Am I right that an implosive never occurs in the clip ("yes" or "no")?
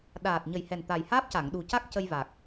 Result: no